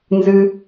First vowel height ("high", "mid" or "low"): high